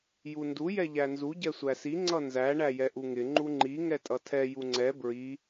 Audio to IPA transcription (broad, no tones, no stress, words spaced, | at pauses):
jundu jɛʎænzu ɟɛsʷæsi ŋ͡ǀʌnzæ ɳæjɛʔuŋɪ ŋ͡ǃuŋ͡ǃi ŋɛtʼʌtʰɛ juŋ͡ǀɛ bɹi